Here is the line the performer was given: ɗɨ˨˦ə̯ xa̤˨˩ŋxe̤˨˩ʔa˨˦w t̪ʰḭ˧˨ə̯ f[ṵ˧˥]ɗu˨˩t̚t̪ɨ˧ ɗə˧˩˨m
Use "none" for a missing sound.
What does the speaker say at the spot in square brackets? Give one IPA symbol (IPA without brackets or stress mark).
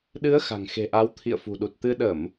ṳ˨˩